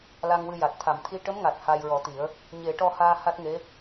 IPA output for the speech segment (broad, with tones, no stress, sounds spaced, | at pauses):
l a˧ ŋ w ɨ˧ j a˨˩ t̚ t̪ʰ a˨˩˨ m t̪ʰ i˧˥ ʈ ə˧˥ m ŋ a˨˩ t̚ h a˧ j ɹ ɔ˨˩˦ t̪ i˨˩˦ ə̯ | ɲ e˨˩˦ ʈ ɔ˧ h aː˧ h a˦˥ t̚ ŋ e˧˥